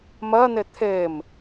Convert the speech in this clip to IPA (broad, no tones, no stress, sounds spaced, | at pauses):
m ɜ n̪ e t̪ʰ e m